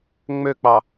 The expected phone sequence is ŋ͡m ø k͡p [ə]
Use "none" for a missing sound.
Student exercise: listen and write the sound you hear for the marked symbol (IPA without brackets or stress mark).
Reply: ɑ